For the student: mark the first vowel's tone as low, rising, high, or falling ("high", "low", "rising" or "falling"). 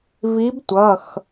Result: rising